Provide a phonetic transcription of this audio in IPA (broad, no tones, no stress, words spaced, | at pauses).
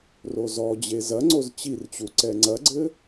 rozɔd͡ʑe zɐŋ͡ǀoz t͡ɕirt͡ɕu ǀɛŋ͡ǀɐɡ͡ǀɘ